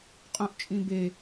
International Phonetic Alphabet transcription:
qʼ ũ ʔ t͡ʃʼ ĩ b e

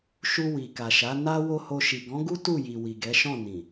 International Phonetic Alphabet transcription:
ʃ u˧ w i˨ k a˨ ʃ a˨˦ n a˦ w o˦ h o˧ ʃ i˨ ɡ ɔ̃˨˦ ɡ u˦ t u˦˨ j i˨ w i˨ ɡ ɛ˨˦ ʃ ɔ̃˦˨ n ĩ˨

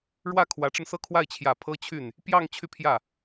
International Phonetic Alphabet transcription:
ɻ w ä˥˩ kʰ w ä˧˥ ʈ͡ʂ ə˧ n s ɤ˥˧ kʰ w a˥˩ ɪ̯ t͡ɕʰ j ä˨˩ pʰ ɤ˥ t͡ɕʰ y˥˩ n | p j ɑ˥˧ ŋ t͡ɕʰ y˥˧ pʰ j ä˥˩

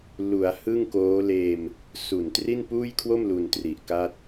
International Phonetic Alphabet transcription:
l u˩˦ a̯ h ɯ˥˩ ŋ k oː˦˥ l eː˧ m | s u˨˩ n t r i˥˩ n p uː˥˩ j kʰ w o˥˩ m l u˧ n t r i˨˩ ʔ k a˥˩ t̚

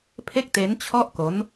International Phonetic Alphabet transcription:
pʰ e˥˩ k̚ t e˦˥ n t͡ɕʰ ɔ˥˩ ʔ k o˦˥ n

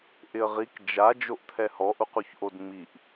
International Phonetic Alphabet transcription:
ʔ ɪ ə̯ ʁ i k d͡ʒ a d͡ʒ o ʔ t̪ʰ ɛ h ɔ ʔ u q u ç ʔ o d ŋ͡m i ʔ

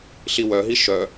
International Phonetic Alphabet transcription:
ɬ i w œ ɦ i ʃ œ

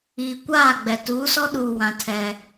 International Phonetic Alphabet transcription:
iː˨ kʷ aː˦˨ ɡ͡b ɛ˨ t uː˨˦ s ɔ˦ ɗ uː˨ w ã˨ tʰ ɛ˦

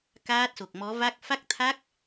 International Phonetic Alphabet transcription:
k aː˦˥ t̚ s o˨˩ k̚ m ɔ˨˦ v a˦˥ k̚ f a˦˥ k̚ t̪ʰ a˦˥ k̚

